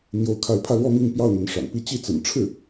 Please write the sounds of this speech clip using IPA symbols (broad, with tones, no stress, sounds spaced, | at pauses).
n̪ j o˥˧ ʊ̯ kʰ a˥˧ ɪ̯ pʰ ä˥˧ l w ɔ˥˧ m i˥˧ ŋ p j ɑ˥˩ ʊ̯ n̪ ə˧˥ n ʂ a̰˨˩ n p i˥ t͡ɕ i˥˩ t͡s ə̰˨˩ n ʈ͡ʂʰ ɻ̩˥˩